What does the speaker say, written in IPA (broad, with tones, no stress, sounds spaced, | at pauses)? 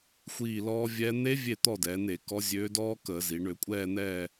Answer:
xʷ iː˦˨ l ɔː˦˥ vʲ ɛ˦˥ n̪ e˦˥ vʲ e˦˨ t̪ ɔ˦˨ d ɛː˩˧ n e˧˩˧ k ɔ˨˥ zʲ øː˨˥ d ɔː˦˥ k əː˧˩˧ z i˩˧ ɳ ø˧˩˧ kʷʼ ɛː˦˨ n̪ ɛː˦˨